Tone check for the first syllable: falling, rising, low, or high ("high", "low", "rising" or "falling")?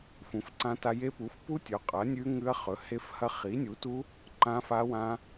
rising